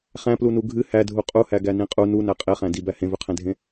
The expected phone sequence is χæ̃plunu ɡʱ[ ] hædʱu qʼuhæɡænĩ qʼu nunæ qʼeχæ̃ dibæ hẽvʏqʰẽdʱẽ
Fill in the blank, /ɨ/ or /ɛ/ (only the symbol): ɨ